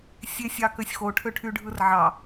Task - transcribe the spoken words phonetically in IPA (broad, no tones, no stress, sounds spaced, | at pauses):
sʲ e sʲ ɑ k ø sʲ x o ʈʰ ø ʈʰ y ɖʱ ɯ r ʕ ɑ